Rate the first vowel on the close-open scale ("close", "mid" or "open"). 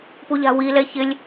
close